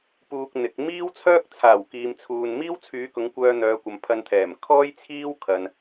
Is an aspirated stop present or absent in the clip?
present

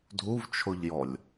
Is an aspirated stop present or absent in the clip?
present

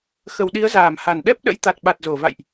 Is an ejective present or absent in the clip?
absent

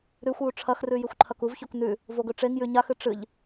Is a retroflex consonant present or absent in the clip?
present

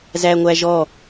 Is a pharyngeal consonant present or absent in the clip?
absent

